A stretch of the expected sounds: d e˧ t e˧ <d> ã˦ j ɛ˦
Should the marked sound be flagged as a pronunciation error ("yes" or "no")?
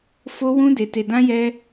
no